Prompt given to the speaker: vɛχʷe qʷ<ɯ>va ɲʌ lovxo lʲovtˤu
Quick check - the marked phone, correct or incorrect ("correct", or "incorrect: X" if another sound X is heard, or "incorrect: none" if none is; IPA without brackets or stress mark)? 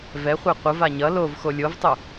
correct